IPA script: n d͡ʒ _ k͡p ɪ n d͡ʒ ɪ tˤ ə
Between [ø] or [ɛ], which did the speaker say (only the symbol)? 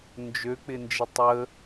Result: ø